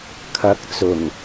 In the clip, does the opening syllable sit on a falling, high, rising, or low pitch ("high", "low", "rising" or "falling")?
rising